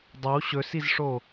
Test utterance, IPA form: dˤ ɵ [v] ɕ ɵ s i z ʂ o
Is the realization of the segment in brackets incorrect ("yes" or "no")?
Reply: yes